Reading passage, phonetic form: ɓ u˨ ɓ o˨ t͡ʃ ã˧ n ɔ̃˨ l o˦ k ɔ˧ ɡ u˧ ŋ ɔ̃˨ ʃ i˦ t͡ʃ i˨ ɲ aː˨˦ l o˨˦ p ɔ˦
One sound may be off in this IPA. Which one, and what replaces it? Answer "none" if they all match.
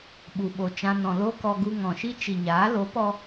none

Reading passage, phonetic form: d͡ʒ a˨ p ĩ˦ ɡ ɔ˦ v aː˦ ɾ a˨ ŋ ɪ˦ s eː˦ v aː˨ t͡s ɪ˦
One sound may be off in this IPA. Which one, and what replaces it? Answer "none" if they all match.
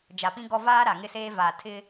t͡s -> tʰ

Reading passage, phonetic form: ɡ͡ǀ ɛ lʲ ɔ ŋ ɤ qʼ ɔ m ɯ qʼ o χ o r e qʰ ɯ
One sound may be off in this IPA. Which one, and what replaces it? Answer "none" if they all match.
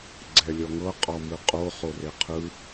none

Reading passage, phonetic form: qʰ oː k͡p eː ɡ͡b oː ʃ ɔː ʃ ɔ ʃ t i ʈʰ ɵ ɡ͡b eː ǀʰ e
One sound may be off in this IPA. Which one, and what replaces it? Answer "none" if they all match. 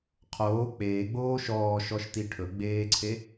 none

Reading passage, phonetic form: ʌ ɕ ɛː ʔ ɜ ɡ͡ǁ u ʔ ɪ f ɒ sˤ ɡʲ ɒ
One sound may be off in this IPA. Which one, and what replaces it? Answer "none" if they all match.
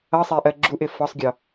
ɕ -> sˤ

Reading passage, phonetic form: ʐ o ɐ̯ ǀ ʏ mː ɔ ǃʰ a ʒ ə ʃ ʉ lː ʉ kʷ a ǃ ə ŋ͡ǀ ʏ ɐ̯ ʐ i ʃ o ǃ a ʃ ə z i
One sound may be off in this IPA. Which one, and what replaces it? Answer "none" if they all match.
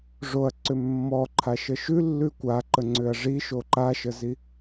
ʒ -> ʃ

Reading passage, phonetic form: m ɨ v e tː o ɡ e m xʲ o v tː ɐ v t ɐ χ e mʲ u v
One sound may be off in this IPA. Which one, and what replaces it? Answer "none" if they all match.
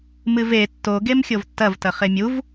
none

